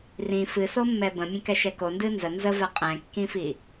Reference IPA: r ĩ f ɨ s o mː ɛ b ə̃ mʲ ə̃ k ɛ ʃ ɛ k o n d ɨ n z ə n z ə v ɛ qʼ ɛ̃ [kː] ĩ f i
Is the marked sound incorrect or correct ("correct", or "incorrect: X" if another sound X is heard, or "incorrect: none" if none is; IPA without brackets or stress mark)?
correct